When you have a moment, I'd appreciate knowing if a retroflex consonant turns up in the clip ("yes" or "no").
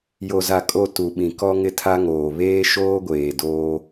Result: no